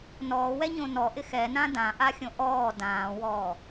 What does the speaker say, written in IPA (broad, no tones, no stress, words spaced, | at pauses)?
nɔːwɛɲõ nɔʔɪ xɛnã dãʔaxʲõ ʔɔː dãːwɔː